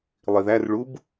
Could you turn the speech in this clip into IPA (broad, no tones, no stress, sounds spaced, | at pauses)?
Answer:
lˠ i ð æ r ɭ u b